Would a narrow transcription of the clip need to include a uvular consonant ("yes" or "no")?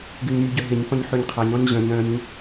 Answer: yes